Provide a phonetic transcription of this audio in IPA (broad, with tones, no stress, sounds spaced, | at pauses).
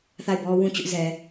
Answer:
θ a˦˨ ɪ̯ b ɔ˦ w ũ˦˨ t͡ɕ ʊ˦ ʔ z ɛ˨